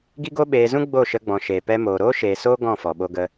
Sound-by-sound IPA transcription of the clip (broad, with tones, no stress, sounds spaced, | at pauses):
ɡ i˦ ɡ o˦ ɓ eː˧ z ũ˦ ɡ͡b o˦˨ ʃ ə˧ ɡ͡b ɔ̃˨ ʃ eː˨ p ɛ˧ m oː˨ ɾ oː˦ ʃ eː˨ s oː˦ ɡ ɔ̃˦˨ f ɔ˨ ɓ o˧ ɡ ə˧